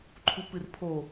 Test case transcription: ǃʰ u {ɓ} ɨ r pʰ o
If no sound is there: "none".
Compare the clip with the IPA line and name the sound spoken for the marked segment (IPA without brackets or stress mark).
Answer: p